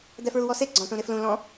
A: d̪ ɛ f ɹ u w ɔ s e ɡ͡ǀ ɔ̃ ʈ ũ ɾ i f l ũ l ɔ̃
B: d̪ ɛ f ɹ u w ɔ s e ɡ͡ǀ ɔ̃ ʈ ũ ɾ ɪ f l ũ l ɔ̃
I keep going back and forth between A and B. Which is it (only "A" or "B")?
B